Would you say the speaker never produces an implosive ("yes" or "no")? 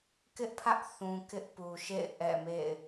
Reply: yes